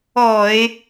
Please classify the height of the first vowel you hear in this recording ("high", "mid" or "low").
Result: mid